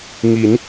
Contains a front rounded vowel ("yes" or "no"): no